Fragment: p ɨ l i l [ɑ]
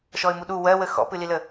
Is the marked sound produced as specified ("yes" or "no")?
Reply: no